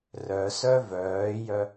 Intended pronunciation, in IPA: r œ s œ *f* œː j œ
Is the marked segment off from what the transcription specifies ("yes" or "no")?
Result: yes